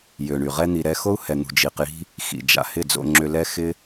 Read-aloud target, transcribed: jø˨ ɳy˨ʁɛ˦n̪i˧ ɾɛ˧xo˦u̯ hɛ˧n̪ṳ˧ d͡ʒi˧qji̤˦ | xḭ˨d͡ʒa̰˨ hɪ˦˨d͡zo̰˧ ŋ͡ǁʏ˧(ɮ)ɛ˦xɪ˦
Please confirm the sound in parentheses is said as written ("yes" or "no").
no